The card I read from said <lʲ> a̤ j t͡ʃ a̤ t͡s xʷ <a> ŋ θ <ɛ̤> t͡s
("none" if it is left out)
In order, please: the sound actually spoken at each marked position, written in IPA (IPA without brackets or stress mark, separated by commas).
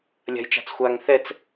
lʲ, a, ɛ